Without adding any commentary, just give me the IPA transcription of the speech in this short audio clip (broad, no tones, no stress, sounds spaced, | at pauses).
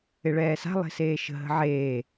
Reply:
ɪ ɭ ɛː s a̤ lˠ e̤ s eː ʃ ə̤ ɦ ə̤ ʕ eː